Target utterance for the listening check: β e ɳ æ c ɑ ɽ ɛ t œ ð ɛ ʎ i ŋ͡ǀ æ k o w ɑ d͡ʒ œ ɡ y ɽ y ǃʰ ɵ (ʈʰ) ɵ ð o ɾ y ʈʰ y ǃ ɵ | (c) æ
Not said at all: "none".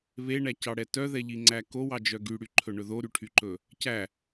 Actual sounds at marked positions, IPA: ɳ, c

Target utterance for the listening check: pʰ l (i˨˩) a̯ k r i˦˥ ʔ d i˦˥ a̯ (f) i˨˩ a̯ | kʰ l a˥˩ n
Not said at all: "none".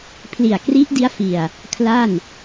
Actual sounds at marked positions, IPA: i˨˩, f

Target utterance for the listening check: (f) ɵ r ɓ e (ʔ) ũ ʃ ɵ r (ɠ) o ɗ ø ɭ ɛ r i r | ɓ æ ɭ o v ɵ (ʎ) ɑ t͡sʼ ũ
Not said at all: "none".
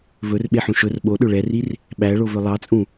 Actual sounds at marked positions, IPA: v, ħ, ɓ, lˠ

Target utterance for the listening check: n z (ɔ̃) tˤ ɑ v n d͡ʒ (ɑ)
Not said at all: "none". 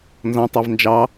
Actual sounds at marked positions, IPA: ɔ̃, ɑ

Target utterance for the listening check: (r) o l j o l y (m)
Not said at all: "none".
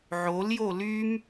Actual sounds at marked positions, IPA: ʕ, m

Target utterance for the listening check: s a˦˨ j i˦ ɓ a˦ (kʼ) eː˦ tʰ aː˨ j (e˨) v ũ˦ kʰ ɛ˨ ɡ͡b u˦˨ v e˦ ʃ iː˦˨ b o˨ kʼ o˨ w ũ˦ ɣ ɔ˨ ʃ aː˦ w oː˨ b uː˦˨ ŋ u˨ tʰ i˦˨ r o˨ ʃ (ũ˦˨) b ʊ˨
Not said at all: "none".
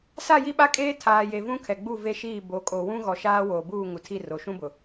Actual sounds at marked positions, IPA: kʼ, e˨, ũ˦

